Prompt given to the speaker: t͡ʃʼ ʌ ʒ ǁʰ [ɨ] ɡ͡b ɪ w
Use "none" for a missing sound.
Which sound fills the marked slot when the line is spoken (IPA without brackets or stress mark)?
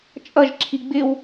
i